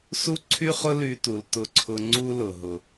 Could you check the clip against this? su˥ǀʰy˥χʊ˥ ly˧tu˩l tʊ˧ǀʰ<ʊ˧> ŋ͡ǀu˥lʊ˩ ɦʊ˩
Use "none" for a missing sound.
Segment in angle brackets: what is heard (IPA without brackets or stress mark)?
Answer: ʊ˧